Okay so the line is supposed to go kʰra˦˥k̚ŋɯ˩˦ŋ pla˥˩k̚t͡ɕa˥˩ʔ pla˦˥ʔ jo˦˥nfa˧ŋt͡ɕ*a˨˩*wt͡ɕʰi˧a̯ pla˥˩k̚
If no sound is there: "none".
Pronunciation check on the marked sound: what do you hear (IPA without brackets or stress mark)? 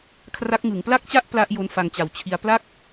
a˨˩